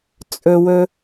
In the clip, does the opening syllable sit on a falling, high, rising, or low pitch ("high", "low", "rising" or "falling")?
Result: low